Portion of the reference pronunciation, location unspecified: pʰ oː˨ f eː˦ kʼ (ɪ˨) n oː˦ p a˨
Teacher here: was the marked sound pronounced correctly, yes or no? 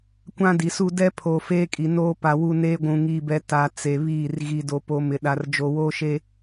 no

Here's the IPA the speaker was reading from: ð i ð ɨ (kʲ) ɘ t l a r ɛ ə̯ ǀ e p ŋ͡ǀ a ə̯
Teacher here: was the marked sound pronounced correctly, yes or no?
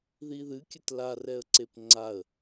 yes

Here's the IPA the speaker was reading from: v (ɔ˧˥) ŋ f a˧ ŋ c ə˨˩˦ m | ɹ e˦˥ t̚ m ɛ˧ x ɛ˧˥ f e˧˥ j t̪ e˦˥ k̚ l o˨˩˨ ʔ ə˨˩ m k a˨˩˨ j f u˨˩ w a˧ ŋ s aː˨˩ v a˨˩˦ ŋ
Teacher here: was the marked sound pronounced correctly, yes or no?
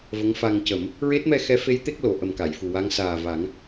no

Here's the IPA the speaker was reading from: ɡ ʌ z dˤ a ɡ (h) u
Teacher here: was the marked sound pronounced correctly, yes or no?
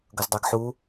no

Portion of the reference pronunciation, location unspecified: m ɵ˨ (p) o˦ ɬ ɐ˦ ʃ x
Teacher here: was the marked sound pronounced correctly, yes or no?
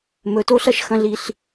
no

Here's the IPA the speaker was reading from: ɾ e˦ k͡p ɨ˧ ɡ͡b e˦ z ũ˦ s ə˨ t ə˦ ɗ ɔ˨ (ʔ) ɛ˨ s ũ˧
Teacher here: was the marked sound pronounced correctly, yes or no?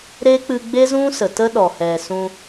no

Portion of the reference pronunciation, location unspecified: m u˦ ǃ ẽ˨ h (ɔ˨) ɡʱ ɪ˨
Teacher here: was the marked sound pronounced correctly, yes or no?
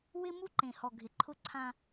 yes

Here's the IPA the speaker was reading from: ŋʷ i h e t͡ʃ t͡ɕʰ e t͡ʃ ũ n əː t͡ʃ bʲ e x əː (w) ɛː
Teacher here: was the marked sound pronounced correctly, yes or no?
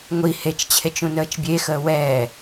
yes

